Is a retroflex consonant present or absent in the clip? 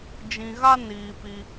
absent